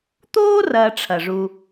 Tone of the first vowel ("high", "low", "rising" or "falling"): high